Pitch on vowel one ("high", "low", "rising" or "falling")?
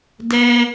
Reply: high